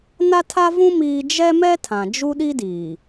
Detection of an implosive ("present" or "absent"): present